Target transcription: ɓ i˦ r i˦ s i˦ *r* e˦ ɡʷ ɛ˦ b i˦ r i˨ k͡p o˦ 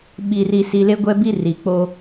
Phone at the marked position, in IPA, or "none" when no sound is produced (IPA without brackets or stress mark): l